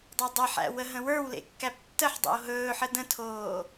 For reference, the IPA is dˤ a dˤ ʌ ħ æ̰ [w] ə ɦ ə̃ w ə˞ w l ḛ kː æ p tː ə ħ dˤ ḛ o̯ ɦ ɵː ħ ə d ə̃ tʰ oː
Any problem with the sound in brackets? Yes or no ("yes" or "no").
no